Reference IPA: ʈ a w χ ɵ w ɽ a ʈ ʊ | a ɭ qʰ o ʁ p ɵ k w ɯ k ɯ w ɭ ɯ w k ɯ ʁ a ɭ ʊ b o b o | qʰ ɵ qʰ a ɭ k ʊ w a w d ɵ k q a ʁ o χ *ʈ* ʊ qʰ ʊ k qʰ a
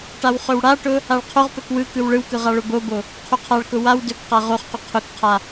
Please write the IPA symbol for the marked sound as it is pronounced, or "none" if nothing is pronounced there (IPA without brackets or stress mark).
q